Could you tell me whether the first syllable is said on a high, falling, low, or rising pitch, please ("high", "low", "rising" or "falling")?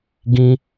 high